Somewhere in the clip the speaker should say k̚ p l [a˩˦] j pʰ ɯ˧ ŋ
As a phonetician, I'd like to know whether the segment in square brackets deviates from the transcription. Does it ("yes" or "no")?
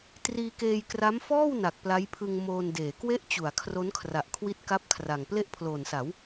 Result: yes